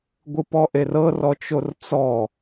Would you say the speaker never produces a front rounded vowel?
yes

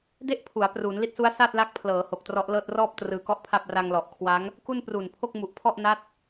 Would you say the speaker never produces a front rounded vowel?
yes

